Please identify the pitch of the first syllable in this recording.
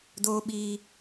high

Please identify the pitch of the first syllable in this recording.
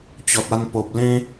low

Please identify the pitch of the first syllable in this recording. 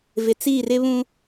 low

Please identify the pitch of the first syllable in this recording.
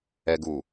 low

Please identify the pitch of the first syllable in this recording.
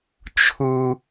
low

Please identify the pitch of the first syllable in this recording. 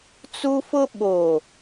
high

